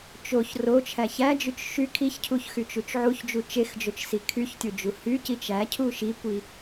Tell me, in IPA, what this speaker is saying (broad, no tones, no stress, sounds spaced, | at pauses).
t͡ʃ o ç r o t͡ʃʰ æ ç æ d͡ʒ y t͡ʃ ʃ y kʰ i ç cʰ u ç x y t͡ʃ u t͡ʃ ʕ u ç d͡ʒ u t͡ʃ e x d͡ʒ o t͡ʃ s i kʰ y ç tʲ o d͡ʒ u h y c i t͡ʃ æ cʰ u ʃ i kʷ i